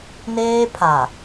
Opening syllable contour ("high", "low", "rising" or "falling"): high